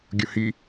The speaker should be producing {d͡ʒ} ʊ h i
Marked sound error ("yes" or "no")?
yes